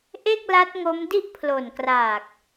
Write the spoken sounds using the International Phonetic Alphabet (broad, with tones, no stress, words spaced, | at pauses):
ʔe˥˩k̚la˦˥t̚ŋo˦˥mdi˥˩ʔ pʰlo˨˩nkraː˨˩k̚